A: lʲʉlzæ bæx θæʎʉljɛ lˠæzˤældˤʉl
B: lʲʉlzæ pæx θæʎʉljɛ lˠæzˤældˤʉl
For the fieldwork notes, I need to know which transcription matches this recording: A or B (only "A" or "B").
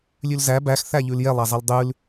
A